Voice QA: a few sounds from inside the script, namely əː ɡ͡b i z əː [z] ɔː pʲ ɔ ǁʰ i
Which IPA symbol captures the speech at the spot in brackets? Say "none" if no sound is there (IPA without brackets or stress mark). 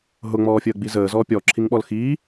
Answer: z